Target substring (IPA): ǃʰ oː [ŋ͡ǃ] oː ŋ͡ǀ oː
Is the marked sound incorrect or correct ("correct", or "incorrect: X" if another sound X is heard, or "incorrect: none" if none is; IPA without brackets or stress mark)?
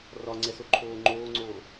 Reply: correct